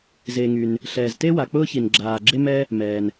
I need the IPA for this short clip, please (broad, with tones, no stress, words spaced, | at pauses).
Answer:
zeː˩ŋy˩n | ɬɛː˩zte˥ wa˩k͡pʊː˥çi˩n ɡ͡ǁaː˩ ɡ͡ǁe˥mɛ˥ | mɛː˩n